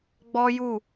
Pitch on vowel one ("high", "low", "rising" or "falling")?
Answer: high